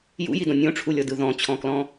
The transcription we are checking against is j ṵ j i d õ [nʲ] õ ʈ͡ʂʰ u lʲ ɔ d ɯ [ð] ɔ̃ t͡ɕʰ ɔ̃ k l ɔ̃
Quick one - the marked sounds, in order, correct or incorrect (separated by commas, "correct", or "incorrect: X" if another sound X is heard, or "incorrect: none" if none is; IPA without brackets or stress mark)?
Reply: correct, correct